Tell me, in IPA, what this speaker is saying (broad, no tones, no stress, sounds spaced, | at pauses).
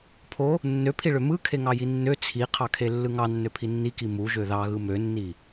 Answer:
pʰ o | nː ø pʰ i ɭ ø m ɯ kʰ e ŋ ɑ j i nː ø t͡sʰ i qʰ ɑ kʰ e lː ɯ ŋ ɑ nː ø pʰ i nː i k i m u ʒ ø ð ɑ ɣ ɯ m ø nː i